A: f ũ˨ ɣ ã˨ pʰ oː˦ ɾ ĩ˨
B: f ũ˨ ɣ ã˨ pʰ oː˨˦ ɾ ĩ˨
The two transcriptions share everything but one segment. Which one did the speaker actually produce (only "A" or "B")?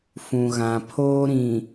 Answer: A